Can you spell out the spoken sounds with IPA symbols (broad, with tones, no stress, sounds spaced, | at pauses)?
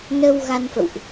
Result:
n ə˧ w ɣ a˧ n f ə̰˧˨ w ʔ